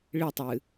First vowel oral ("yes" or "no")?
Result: yes